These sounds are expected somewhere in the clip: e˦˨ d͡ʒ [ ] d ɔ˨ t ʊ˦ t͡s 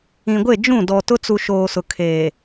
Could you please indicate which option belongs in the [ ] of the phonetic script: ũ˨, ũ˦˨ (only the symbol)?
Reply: ũ˦˨